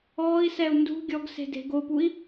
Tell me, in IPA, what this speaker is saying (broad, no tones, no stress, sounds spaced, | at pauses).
ɔː i̯ s ɛ u̯ n d ṳ ɡʲ ɔ ɡ s e̤ d e̤ ɡ o p u i̯